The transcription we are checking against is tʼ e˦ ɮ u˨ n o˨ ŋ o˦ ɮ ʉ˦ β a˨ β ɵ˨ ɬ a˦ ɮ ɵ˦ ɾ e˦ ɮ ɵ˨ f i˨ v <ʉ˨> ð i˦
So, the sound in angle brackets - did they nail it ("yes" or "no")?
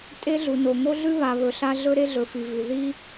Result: yes